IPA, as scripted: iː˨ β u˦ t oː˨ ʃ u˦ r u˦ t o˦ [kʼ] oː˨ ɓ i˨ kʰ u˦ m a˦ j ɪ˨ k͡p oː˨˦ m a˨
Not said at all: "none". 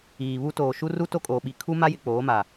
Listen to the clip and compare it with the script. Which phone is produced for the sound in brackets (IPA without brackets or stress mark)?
kʼ